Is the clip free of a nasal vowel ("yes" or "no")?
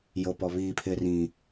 no